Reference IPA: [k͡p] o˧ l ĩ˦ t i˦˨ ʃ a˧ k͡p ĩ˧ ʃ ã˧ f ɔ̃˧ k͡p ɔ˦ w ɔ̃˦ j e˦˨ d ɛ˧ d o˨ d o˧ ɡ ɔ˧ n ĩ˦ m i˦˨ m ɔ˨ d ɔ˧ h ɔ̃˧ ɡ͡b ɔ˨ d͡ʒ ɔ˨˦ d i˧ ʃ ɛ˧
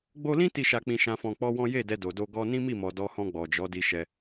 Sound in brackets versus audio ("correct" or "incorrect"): incorrect